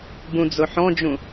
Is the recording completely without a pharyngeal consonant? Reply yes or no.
no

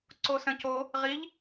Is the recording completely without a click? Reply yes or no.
no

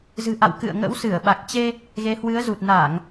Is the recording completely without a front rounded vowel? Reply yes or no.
yes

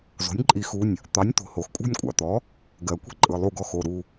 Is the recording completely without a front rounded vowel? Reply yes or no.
yes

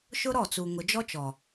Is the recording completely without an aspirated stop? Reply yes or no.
yes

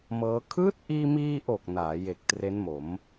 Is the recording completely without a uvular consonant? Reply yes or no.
yes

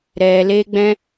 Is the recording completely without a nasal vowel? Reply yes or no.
no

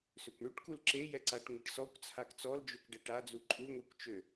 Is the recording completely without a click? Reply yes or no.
no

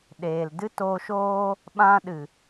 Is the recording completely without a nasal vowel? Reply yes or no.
no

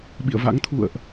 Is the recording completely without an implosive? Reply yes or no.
no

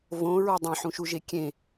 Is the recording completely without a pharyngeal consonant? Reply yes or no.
no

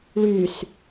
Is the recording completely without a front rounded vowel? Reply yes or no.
no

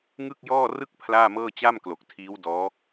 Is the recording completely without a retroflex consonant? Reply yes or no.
yes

